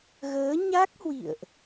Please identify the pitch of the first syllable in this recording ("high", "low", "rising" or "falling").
rising